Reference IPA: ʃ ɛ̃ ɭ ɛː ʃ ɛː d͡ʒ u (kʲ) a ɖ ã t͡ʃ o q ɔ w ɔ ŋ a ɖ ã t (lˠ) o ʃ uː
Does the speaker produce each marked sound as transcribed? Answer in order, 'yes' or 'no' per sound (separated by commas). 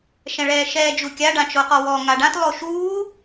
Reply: yes, yes